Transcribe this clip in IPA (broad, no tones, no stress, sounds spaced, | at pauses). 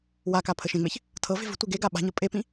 w a k a pʰ ə ʃ ẽ ŋ͡m e ç | tʰ ɤ v e̤ v ə̤ tʷ e ɡ e ɡ a ɓ a̤ ɲ ɤ pʼ e p ĩ